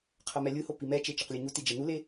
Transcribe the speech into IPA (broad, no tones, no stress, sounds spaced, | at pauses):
qʰ ʌ m ɛ lʲ ɯ h o p i m ɛ t͡ʃ e t͡ʃ ʌ q lʲ ɯ ɲ u t i d͡ʒ ɛ n u l e